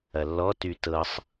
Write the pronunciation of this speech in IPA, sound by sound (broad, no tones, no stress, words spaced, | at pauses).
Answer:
ɐlːɔ tytɤsˤ